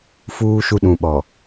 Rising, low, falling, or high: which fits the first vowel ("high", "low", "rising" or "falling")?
high